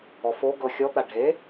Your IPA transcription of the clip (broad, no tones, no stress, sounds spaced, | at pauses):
ɔ f o ɡ ɤ xʲ ɔ t̪ a ɖʱ e